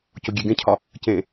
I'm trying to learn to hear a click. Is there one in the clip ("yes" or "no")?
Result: no